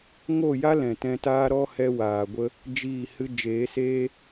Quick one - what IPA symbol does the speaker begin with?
ŋ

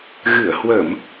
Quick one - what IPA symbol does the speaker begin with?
ɣ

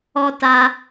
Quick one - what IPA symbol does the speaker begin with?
ɔ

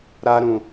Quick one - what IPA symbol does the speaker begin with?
ɾ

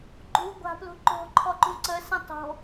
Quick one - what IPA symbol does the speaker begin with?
ɡ͡ǃ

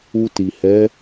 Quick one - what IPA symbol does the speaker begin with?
u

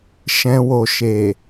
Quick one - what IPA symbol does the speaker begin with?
ʃ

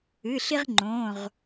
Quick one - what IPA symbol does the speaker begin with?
ɨ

